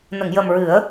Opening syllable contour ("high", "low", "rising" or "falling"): low